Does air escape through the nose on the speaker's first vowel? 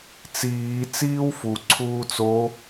no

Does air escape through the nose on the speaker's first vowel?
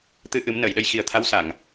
no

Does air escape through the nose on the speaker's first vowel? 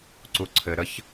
no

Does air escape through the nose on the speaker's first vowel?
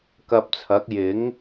no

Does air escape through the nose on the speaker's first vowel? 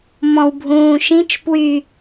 yes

